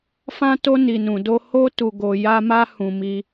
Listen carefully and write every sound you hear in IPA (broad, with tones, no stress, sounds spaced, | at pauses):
f ã˧ t o˧ n i˨ n ũ˨ d o˧ h o˦ t u˧ ɡ o˧ j a˦ m a˦ h ũ˧ m i˧